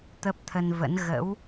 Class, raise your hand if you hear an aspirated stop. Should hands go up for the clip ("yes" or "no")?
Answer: yes